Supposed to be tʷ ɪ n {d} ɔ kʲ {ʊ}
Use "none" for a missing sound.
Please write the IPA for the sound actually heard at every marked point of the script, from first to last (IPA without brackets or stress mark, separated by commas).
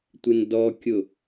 d, ʊ